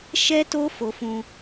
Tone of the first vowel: high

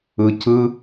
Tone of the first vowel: low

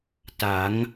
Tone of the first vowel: rising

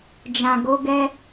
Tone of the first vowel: low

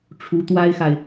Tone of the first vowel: rising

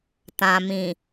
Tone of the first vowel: low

